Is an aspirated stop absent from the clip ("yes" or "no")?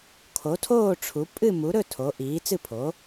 no